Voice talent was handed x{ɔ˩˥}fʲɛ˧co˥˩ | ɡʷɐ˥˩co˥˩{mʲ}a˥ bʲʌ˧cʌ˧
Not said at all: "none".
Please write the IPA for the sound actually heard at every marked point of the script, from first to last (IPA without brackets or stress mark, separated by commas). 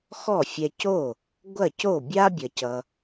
ɔ˥˩, bʲ